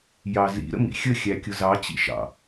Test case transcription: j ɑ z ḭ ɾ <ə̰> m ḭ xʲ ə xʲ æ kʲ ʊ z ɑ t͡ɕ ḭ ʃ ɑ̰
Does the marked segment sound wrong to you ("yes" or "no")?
no